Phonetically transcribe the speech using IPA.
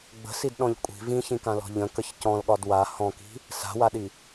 ɡ͡bə̤sidɗɔ̃ʎ kʷʼi̤ vĩçĩkãlɔ̤ ʎə̃kəç cɔ̃lɠɒd wa hɔ̃ki̤ | sa̤waɗi

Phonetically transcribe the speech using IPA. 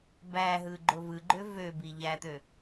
bæɦɯ ɡ͡ǃovɯɡ͡ǃø vøbi ʎæt̪ø

